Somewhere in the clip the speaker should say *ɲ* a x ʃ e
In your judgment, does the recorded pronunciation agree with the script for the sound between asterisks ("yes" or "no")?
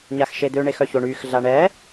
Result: yes